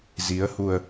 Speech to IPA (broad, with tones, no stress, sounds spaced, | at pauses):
z i˨˦ ə̯ h u˨˩ ə̯